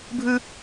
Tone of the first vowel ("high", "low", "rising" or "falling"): high